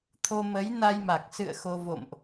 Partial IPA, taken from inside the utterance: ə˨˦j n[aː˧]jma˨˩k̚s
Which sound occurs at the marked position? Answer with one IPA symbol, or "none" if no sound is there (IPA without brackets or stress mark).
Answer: a˧